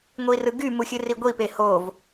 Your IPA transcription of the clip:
ŋʷirɯɡy muxʲɯriɡʷi pehov

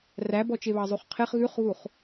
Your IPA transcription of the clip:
ræbɔt͡ʃeβɑ zˤuχqʰeχ ɣʉχɣuχ

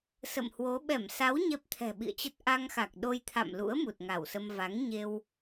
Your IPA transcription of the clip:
sə̰˧˨mhwo˨˦ ɓɛ˧˩msa˨˦w ɲɛ˦˥p̚t̪ʰɛ̤˨˩ɓḭ˧˨ə̯t͡ɕə˦˥t̚ ʔa˧ŋxa˨˩k̚ɗo˧jt̪ʰa̰˧˨m lṵ˧˥ə̯ mu˨˩t̚ŋa˧˩wsə˧m va˨˦ŋɲe˧w

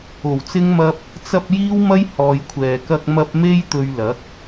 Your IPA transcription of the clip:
o˨˩wt͡sɪ˥ŋmɐ˥p̚ | t͡sɐ˧p̚ jiː˥wmɐ˥j hɔː˨jkʷʰɛː˨kɐ˧k̚ mɐ˧p̚ me˥j t̪ɵ˧ɥlɐ˨˥k̚

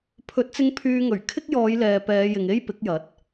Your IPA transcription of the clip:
pʰɵ˨˥t̚t͡sɪ˧ŋ pʰyː˧ŋɵ˨˩ɥ kʰɪ˥k̚jɔː˨˧j lɛː˨pɛː˨˧jɪ˨ŋe˥j pɪ˨˥k̚jɐ˨˥t̚

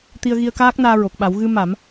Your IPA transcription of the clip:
t̪i˧ə̯ɣi˧ə̯kaː˦˥k̚ naː˧ɹo˨˩k̚ɓa˨˩˦w ɣɨ˧ma˨˩˦m

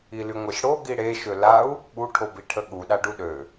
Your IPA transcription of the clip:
ilyŋʷeʃɽo ɡiɽe ʃølau̯ | ɓu ʈʰobiʈʰəɠu ɗaɖuɗø

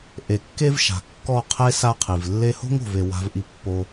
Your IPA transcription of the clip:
ʔe˨kːe˦v ʃa̤˨kːɔ˦˨qʰe˦ sa˦qʰi˨v lːe˧ho̤˦ŋo̤˨ve˨ wa̤˦vʔi˦ pːo˧

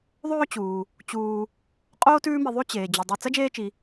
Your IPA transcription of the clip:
ðˤɵː˦t͡ɕuː˩ | t͡ɕuː˨ | qʼoː˥tʉː˦mi˨ ðˤʉ˥t͡ɕeː˩ d͡ʑʉ˩dˤi˨ t͡sɐ˥d͡ʒeː˦t͡ʃi˩

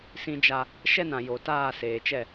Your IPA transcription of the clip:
sĩ˦d͡ʒa˦ | ʃɛ˦nã˨ jo˨taː˦˨seː˨t͡ʃɛ˦˨

